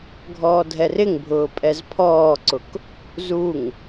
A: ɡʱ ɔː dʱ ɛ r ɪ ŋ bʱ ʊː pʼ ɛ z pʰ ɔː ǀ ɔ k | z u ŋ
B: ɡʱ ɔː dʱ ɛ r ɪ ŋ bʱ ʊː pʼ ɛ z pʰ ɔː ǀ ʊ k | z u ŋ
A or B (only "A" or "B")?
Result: B